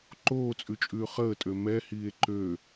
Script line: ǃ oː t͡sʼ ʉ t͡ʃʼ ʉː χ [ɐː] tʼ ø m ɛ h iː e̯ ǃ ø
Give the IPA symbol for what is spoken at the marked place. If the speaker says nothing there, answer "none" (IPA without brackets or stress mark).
əː